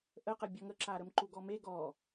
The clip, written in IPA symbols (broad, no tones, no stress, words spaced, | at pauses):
ʔəqəbʲɔ ŋəǁa ɾəmǃuɡɔme ɡɔ